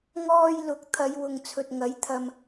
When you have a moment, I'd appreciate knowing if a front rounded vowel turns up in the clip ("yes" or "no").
no